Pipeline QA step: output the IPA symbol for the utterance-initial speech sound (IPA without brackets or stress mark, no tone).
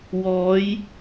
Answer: w